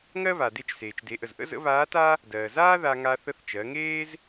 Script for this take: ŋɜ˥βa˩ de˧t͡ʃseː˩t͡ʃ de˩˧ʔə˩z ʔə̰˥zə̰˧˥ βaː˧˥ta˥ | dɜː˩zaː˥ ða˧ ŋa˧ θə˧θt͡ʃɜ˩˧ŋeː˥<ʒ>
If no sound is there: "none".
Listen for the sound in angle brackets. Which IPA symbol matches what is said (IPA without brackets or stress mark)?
z